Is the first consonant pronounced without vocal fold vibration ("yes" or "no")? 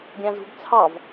no